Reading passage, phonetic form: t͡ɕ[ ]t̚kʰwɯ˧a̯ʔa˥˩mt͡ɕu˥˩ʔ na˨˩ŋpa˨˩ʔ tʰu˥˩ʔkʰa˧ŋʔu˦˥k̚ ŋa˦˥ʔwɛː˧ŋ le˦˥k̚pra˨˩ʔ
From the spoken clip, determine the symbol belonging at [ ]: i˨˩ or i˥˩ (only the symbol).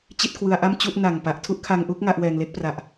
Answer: i˥˩